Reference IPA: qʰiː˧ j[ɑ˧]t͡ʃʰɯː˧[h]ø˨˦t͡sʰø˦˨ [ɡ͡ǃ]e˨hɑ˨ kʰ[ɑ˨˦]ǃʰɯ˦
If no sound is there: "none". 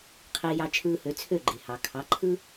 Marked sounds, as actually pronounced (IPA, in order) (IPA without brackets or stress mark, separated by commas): ɑ˧, h, ɡ͡ǃ, ɑ˨˦